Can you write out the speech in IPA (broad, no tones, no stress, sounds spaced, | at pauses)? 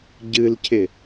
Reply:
ɟ ɨ l cʰ ɪ